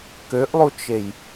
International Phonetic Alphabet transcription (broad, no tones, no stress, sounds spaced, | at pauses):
k ø ʔ lˠ u t͡ʃ e j